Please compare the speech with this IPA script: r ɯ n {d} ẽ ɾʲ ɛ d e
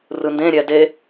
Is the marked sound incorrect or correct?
correct